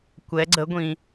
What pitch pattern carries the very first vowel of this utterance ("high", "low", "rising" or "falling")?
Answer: rising